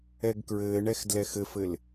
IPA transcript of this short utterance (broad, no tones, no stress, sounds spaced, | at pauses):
ɛ ɡ k ɹ ɘː ɳ ɛ x d l ɛ x ɘ f ɘ l